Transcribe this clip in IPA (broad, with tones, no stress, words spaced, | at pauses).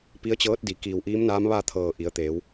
pi˧˥ə̯t͡ɕɤː˧˥t̚di˩ kiː˧˩w ʔiː˧˥mnaː˧˥m ʋa˥˨t̪ʰɤː˧˩ʔi˩˧ə̯t̪eː˩˧w